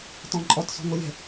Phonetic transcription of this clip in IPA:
tɔ̃ǃʼɔt sɔ̤ŋʷɯlʲə̤

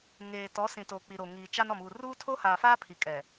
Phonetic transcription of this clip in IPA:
ŋeː˨ tɔ˨˦ sĩ˨toː˨ k͡pi˨ɾo˨ ŋiː˨t͡ʃa˦n ɔ˨muː˨ ruː˦tʰo˦haː˨faː˦ pʰi˨kʼɛ˨

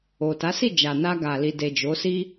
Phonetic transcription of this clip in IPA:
o˨ta˨˦si˦˨d͡ʒa˨ na˧ɡa˨li˨de˨ d͡ʒo˨˦si˦

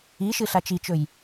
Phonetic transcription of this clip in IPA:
iʃɨ ɬat͡ʃit͡ʃɵj

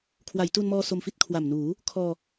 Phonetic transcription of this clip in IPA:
kʰwa˩˦jtu˧nmɔː˧ so˧mfi˦˥t̚kʰwa˨˩mnuː˩˦ | kʰɔː˧

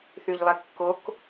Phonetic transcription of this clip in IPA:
θyʎlˠɛkːok

